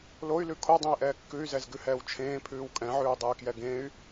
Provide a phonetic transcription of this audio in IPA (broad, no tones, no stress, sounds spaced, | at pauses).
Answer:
l o y̯ l ʉ kʰ o dˤ ẽ i̯ ʔ ɛː kː ʉ y̯ z ɛ z ɡ ʉ h ɛː w t͡ʃʰ ẽː pʰ ʉː w kʼ ɛ̃ ʕ ʉː dˤ e y̯ k j ɛ ɡ ẽ y̯